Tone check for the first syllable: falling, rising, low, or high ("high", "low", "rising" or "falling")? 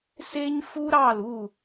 high